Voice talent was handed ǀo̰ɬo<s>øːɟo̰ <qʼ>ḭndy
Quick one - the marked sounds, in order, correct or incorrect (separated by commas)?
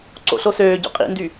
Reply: correct, correct